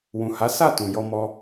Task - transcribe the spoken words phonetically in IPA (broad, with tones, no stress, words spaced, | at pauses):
wũ˨ha˨˦ sa˦˨ tũ˨jɔ˧mɔ˧